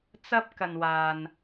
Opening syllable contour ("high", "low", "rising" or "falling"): high